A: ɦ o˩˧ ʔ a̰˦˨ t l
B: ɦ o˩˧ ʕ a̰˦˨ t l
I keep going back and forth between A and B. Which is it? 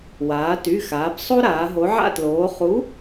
B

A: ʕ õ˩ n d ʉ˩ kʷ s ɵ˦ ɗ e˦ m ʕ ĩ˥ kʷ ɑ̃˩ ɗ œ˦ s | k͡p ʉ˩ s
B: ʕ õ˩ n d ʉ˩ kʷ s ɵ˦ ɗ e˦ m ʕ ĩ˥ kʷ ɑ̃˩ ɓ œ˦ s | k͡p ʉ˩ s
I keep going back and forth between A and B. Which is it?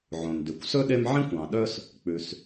A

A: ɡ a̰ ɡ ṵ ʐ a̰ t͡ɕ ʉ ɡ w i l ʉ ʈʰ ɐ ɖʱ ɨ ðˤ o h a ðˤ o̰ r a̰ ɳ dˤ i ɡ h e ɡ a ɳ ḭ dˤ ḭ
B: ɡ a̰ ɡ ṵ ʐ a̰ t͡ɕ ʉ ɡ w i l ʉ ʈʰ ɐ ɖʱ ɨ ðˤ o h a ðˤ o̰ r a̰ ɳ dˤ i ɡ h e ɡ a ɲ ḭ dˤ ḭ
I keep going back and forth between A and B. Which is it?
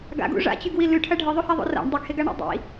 A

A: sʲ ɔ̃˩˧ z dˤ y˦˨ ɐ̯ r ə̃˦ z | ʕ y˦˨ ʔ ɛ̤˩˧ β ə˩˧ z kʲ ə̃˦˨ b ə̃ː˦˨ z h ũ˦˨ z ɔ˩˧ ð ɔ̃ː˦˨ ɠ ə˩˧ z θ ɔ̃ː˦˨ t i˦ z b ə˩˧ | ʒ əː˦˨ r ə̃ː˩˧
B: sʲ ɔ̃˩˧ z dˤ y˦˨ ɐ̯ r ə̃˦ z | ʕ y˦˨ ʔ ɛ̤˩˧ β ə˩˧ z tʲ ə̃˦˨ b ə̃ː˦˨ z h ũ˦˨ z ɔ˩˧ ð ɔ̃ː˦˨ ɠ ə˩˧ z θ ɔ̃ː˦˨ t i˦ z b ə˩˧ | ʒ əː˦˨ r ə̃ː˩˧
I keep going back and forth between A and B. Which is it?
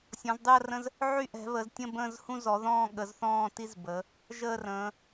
B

